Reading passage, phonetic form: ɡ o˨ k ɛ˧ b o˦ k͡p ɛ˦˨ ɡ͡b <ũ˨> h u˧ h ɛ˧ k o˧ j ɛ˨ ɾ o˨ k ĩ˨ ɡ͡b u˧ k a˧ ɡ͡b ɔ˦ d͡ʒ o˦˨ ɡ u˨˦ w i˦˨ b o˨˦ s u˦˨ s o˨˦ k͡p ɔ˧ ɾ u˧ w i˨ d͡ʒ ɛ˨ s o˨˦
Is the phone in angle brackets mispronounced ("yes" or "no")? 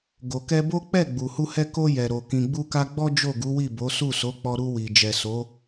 yes